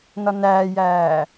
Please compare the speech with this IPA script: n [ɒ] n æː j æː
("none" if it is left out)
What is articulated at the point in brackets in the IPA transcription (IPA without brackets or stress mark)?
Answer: ɒ